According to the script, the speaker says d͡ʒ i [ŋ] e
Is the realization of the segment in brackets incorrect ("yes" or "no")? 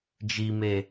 yes